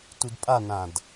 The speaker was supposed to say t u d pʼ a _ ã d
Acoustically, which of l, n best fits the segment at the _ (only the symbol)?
n